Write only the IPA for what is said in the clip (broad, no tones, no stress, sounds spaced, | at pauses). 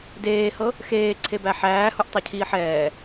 d eː h ɤ | x eː ǀʰ e b æ ħ æː h u ʔ tˤ ɛ cʰ iː ħ ɛː